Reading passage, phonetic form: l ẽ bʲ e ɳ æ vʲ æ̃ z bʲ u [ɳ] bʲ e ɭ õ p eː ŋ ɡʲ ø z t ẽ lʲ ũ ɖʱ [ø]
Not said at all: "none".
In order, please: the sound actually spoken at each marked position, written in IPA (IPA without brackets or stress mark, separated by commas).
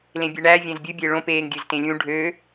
none, ø